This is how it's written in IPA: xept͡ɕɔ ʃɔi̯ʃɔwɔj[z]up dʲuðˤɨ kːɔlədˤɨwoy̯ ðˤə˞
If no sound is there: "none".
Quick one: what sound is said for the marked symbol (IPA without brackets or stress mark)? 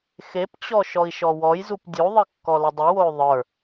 z